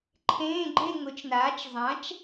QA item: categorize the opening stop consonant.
click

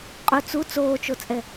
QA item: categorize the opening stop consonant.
ejective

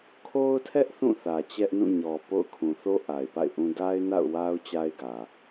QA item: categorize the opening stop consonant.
aspirated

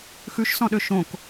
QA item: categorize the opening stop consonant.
implosive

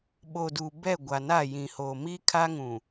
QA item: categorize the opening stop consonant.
implosive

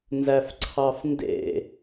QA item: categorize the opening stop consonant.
click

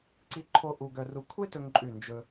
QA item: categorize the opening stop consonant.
click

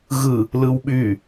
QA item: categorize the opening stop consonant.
implosive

